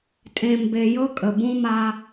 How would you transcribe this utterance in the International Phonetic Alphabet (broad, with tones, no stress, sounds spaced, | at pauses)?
tʼ ẽ˨ m b e˨ j ɤ˦ kʼ ə˨ b ũ˦ m a˦